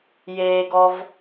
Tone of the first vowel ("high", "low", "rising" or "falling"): low